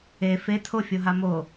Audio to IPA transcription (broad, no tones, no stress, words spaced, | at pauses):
e fe tʰofʲoɦa mo